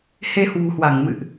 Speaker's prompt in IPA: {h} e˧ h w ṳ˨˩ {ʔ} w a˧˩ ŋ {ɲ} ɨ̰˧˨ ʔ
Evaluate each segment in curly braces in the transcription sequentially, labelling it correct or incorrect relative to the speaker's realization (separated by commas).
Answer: correct, incorrect, incorrect